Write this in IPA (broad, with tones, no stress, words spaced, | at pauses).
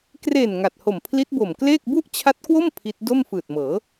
kre˨˩n ŋa˨˩t̚ho˨˩m pʰli˦˥t̚bo˨˩mkleː˥˩k̚ bu˥˩ʔt͡ɕʰa˦˥t̚kwo˥˩m pʰi˦˥t̚ do˥˩mfɯː˨˩t̚mɤː˩˦